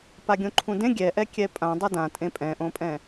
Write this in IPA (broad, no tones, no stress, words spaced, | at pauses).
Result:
paɡʲõǃʰũdẽ ɡʲɛʔɛ kʲɛpʼã dˤʌdã tʼẽpʼɛ̃ʔõpʼɛ̃